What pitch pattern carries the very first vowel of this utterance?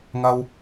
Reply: low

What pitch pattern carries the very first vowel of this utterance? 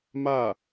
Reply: falling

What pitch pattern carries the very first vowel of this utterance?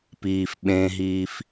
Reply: low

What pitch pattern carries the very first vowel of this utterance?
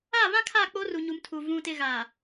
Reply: falling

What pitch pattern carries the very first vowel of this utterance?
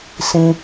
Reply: high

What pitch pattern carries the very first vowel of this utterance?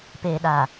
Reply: low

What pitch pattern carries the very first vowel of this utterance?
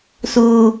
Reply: low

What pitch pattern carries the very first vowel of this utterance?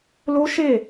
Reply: high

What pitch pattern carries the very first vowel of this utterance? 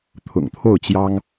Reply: low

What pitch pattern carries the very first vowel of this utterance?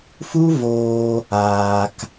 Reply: high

